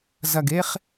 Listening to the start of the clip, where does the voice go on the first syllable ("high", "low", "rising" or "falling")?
low